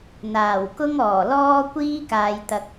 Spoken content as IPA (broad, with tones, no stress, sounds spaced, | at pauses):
n̪ aː˨˩ w k ʊ˥ ŋ ɔː˨˩ l ɔː˥ kʷ iː˥ k aː˨ j t̪ ɐ˨ k̚